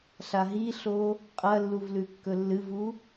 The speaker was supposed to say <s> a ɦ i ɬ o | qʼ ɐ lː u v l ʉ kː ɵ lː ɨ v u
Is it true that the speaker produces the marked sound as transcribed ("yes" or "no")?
no